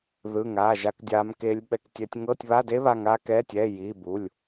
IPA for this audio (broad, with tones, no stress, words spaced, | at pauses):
ðɯ˧˥˧ŋaː˧˥˧ʒa˦˥k dʲaː˦˥mkeː˦˥lʲɓɛ˦˥ktʲɛ˦˥tʲ ŋɤː˧˥˧tʲβa˧˥˧de˦˥ βa˧˥˧ŋaː˦˥ kɛ˧˥˧tʲɛː˧˥˧ jiː˧˥˧bu˧˥˧lʲ